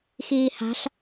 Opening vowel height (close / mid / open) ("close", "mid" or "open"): close